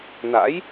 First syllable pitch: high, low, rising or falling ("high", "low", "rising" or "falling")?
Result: rising